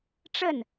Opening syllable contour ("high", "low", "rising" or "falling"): falling